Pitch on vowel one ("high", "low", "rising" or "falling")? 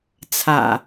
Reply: low